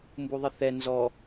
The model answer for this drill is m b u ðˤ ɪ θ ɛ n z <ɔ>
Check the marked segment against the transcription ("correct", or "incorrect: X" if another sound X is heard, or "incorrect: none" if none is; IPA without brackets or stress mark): correct